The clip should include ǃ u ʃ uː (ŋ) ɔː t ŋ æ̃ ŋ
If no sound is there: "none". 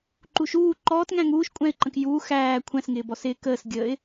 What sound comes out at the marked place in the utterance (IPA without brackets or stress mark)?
ǃ